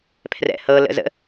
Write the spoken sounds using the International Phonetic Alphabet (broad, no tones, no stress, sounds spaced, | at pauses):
pʰ r ɛ̰ h ɤ l ə̰ z ə̰